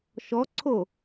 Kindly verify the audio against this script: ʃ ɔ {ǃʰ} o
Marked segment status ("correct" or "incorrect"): incorrect